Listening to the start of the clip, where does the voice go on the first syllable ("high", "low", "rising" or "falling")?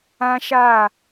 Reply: high